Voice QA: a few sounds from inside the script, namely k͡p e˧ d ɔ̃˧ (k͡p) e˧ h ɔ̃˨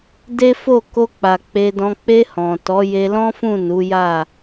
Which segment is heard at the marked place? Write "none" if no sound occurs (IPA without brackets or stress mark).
k͡p